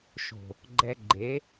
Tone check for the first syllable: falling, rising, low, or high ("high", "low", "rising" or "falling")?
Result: low